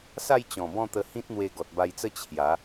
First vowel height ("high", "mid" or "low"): low